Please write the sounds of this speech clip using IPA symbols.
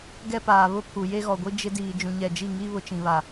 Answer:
ɡ ɛ˦ p aː˨ β ʊ˦ pʰ u˨ j e˦ ɣ ɔ˨ ɡʷ i˦ d͡ʒ ɪ˦ d iː˨ d͡ʒ ũ˨ ɲ ɛ˨ d͡ʒ i˦˨ ŋ i˦ β ʊ˦ t͡ʃ ĩ˨ β a˨

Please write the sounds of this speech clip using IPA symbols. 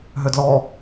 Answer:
ɦ ʏ d l ɔ

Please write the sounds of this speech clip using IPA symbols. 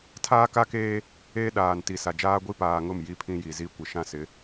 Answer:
tʰ aː˦ k a˦ k eː˦ | eː˦ ɗ aː˨ n t i˨ s a˨ d͡ʒ aː˦ ɡʷ i˦ p aː˨ ŋ ʊ˦˨ m j i˦ pʰ ĩ˦ j i˨ z i˦ kʷ ɪ˨ ʃ ã˦ s ɪ˨˦

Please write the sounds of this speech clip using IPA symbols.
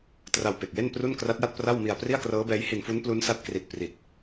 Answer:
t r a˧ w p e˨˩ k̚ j e˥˩ n p r u˥˩ n k r a˦˥ t̚ j a˥˩ t̚ p r a˥˩ w m i˧ a̯ p r i˥˩ a̯ k r ɤː˦˥ b ɛː˦˥ j h i˧ n f u˦˥ n p l u˦˥ n s a˦˥ t̚ k r i˨˩ t̚ p r i˨˩ t̚

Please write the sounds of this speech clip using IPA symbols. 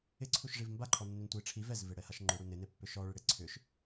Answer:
ɪ ǀʰ u ʃ ʐ i v m b a ǃʰ ɔ nː ʏ n tʷ i ʈ͡ʂʰ i v ɛ z v e ɽ ɛ h a ʃ ŋ͡ǃ ʏ ɽ u n ɪ n e pː ʏ ʃ ɔ ɭ ɪ ɽ e ǀʰ ʏ ʃ

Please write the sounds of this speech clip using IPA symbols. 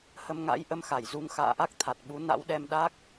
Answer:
h ə˧ m ŋ a̰˧˥ j ʔ ə˧ m x a˧˩ j z u˨˦ ŋ x a̰ː˧˨ ʔ a˦˥ k̚ t̪ʰ a˨˩ t̚ ɓ u˨˦ n a̰˧˥ w ɗ ɛ˧ m ɗ a˦˥ k̚

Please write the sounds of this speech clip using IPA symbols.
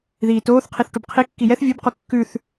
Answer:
ð iː t oː θ qʰ i θ ʈ u b qʰ i kː i j ɛ θ vʲ ʉ b q u kː ʉ θ

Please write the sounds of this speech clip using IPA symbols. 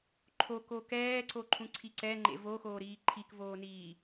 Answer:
ǃʰ o k o k ɛː ǀ o ǃʰ ũ ǀʰ i ǀ ɛ ŋ͡ǃ ḛ v o x oː ɾ iː ǃʰ i k v oː n iː

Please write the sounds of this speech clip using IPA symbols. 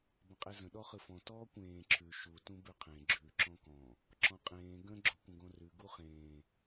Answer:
b ə̃ qʼ e z ə̃ ɗ ɔ χ ɯ f ɔ̃ t ɔː kʷ ẽː ǁʰ ʉ ʃ u t ũ b ʉ qʰ ẽ ɡ͡ǁ ʉ ǁ ɔ̃ k ɔ̃ | ǁ ɔ̃ qʼ ẽː ɡ ə̃ ɡ͡ǁ o kʷ ə̃ ɡ õ r ʉ ɡ u χ ẽː

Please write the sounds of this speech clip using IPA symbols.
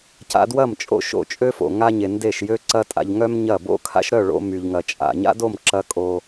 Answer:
c a̰˧ d w ɐ˦˨ m t͡ʃʼ o̰˧ ʃ o̰˧ t͡ʃʼ ø˦ f o̰˨ ŋ a˧ ɲ e˨ n d e˦˨ ʃ j ø˦ ǀ ɐ˦ tʼ a̰˧ ʎ ŋ œ˦ m ɲ ɐ˦˨ b o̰˦ kʰ a̰˦ ʃ ɾ œ˦˨ ɭ o̰˧ m y˧ ʎ ŋ ɐ˧ t͡ʃʼ a̰˨ ɲ a̰˦ d o˦˨ m ǁ ɐ˧ kʼ o˧

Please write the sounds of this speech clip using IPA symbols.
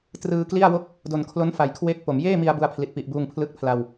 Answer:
t r ɯː˧ k l i˥˩ a̯ w o˥˩ k̚ | d o˨˩ n kʰ l o˦˥ n f a˨˩ j kʰ w e˦˥ k̚ p o˩˦ m j eː˥˩ m i˧ a̯ b u˧ a̯ pʰ l i˨˩ t̚ p i˨˩ ʔ b uː˧ ŋ pʰ l ɯ˦˥ k̚ pʰ l a˧ w

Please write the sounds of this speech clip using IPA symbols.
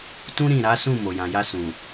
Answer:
t ũ˦ ɾ ĩ˦˨ ɾ a˨˦ s ũ˦˨ m o˨ j ã˨ j a˧ s ũ˨

